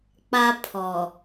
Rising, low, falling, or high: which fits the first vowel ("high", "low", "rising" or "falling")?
high